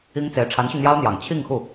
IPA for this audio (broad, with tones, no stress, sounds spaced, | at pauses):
i˥ ŋ t͡s e˧˥ ɪ̯ ʈ͡ʂʰ a˧˥ n ɕ y˧ n̪ j ɑ˥ ʊ̯ n̪ j ɑ˨˩ ŋ t͡ɕʰ i˥˧ ŋ x u˥˩